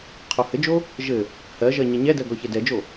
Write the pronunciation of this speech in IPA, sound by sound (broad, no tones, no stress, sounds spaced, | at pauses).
qʰ o h ɘ d͡ʒ o | ʒ ɘ | h ɜ ʒ ɜ ɲ ɛ ɲ ɛ d ɜ ɡ ɔ ç ɛ d ɛ d͡ʒ o